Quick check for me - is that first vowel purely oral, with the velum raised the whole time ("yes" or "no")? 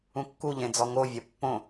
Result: no